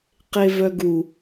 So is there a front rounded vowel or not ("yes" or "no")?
yes